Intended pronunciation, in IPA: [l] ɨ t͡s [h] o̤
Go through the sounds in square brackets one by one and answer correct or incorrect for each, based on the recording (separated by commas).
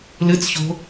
correct, incorrect